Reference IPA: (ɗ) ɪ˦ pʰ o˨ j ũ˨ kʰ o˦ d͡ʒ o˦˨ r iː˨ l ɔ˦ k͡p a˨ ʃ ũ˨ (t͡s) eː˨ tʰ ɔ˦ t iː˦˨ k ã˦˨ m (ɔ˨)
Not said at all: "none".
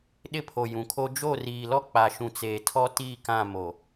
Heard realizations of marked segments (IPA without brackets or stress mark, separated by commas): ɗ, t͡s, o˨